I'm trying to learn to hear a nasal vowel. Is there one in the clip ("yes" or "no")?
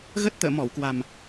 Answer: no